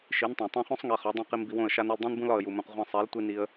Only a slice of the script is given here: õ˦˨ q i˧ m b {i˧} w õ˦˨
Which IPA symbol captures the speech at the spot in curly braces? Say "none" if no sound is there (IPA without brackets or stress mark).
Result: i˧